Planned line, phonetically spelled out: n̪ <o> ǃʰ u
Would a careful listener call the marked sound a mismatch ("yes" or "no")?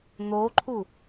no